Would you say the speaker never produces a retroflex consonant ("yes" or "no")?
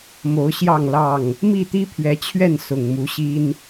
yes